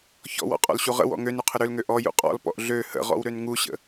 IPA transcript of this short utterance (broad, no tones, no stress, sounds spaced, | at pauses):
ç ɔ̰ w ɔ̰ qʼ ɔ̰ l ɕ u ʁ ə̰ w ɔ̰ ŋ ø n u qʰ ə ɾ ø l ŋ ø ʔ ɔ j ṵ qʼ ɔ̰ l p ɔ̰ ʔ ɮ ø h ə̰ ʁ ɔ̰ w ɾ ø n ŋ u ɕ ə̰